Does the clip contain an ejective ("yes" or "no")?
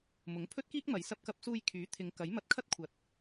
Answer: no